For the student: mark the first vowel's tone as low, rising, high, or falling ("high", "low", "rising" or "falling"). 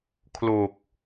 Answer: low